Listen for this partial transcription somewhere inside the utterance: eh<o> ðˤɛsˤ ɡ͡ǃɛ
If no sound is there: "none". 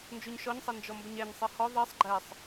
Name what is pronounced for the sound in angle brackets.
ɔ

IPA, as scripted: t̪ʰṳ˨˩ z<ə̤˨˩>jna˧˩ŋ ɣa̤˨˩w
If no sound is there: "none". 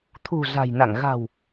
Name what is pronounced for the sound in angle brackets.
a̤˨˩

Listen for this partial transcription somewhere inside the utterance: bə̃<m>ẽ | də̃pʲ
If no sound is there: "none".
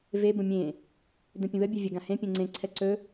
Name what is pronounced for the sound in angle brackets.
mʲ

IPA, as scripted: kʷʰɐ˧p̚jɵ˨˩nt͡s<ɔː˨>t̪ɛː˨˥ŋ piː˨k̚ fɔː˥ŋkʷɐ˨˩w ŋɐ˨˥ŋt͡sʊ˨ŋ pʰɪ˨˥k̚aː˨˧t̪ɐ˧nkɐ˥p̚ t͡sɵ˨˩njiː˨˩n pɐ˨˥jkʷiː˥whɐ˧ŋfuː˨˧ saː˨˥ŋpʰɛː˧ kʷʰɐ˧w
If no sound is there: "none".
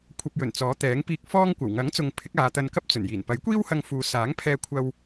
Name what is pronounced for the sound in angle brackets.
ɔː˨˥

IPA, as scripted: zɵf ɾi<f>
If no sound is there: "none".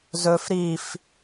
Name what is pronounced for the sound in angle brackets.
f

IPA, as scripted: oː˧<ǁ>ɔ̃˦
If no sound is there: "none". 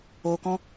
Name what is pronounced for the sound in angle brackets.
k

